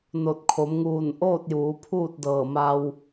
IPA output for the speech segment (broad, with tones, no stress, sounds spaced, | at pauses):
n o˧˩ t̚ kʰ o˩˧ m ŋ uː˧˩ n ʔ oː˥˨ t̚ j uː˩˧ pʰ uː˥˨ t̚ d ɤː˧˩ m a˧ w